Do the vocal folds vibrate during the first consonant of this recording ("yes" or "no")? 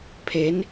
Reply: no